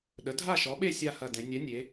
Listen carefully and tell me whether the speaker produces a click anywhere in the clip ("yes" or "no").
no